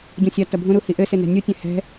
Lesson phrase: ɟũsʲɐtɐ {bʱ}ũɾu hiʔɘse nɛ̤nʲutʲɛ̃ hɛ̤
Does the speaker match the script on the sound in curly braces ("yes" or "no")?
yes